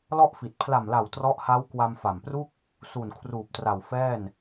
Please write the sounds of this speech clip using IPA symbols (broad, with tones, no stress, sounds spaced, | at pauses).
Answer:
l ɔ˥˩ ʔ f i˨˩ t̚ pʰ l a˨˩ m l a˨˩ w t r ɔ˦˥ ʔ h a˦˥ w k w a˧ m f a˨˩ m p r u˥˩ k̚ | s u˨˩ n kʰ r uː˨˩ p̚ t r a˨˩ w f ɛː˥˩ n